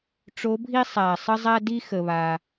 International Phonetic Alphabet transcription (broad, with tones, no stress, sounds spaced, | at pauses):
ʈ͡ʂ o˧˥ bʱ i˥ sˤ æ˨˩ sˤ ə˥ zˤ æ˥ d i˥ x ə˧ β a˧